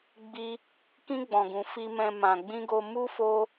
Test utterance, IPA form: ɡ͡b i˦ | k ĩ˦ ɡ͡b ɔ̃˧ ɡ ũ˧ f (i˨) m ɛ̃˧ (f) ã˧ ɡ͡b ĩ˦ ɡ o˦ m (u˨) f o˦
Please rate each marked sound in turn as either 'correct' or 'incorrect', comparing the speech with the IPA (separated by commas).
incorrect, incorrect, incorrect